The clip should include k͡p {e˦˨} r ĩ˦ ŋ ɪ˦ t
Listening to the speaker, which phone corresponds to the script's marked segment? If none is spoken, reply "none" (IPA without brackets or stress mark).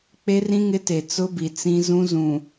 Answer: e˦